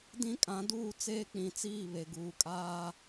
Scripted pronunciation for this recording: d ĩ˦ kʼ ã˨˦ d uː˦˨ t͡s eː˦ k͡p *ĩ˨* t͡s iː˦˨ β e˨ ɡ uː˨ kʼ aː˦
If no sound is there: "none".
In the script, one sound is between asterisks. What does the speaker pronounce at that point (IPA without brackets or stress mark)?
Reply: ĩ˨